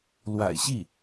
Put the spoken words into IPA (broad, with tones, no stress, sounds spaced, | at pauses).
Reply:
l w a̰˨˩ ɪ̯ ɕ i˥˩